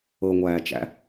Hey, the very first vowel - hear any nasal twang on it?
no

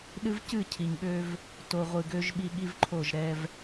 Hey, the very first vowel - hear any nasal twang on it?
no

